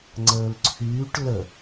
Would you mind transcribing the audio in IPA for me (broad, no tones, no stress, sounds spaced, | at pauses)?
ŋ͡ǀ əː l ǀʰ yː ʈ l ə